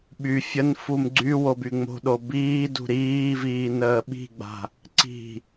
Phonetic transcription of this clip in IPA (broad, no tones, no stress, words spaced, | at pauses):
ɓy fʲənfum ɡ͡ǀy wobyŋ͡mo̤ɗo biːdṳ ɾiːviː nəːɓi̤ɡ͡ba̤ | ǀi̤